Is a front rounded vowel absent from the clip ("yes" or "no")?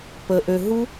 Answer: no